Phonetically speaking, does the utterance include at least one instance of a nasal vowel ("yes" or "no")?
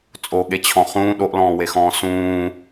yes